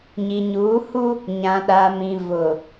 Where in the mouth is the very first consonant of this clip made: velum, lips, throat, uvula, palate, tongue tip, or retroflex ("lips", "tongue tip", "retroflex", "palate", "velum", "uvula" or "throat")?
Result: palate